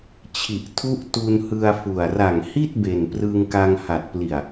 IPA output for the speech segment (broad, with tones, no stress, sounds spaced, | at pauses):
t͡ɕʰ i˨˩ ʔ tʰ u˦˥ ʔ t u˧ n h ɯ˧ a̯ f u˨˩ a̯ r a˨˩ ŋ h i˥˩ t̚ b e˨˩ n p r ɯ˧ ŋ k a˧ ŋ h a˨˩ t̚ p l i˨˩ a̯